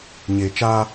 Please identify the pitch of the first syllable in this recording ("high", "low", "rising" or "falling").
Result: low